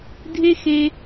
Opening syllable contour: high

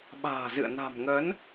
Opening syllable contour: low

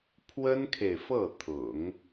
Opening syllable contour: high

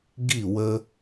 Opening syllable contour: falling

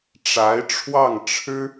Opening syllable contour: rising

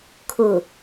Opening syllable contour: low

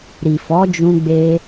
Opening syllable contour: low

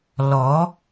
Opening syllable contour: rising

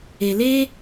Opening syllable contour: low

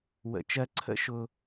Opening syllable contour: low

